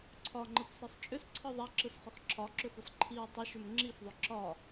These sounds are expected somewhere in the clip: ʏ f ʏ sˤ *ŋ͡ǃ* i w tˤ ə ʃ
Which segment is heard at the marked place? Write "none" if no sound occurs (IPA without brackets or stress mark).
ǃʰ